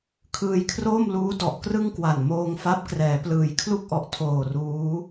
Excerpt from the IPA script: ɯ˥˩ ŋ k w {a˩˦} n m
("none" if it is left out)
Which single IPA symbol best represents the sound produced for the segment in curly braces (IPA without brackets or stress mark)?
a˨˩